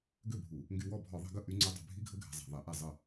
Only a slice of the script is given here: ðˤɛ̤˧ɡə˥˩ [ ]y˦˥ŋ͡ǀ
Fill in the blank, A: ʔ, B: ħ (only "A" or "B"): A